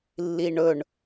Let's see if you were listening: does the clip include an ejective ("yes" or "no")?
no